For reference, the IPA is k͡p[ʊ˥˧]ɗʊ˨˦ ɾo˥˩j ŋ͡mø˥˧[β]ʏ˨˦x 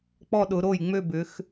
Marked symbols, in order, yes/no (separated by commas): no, no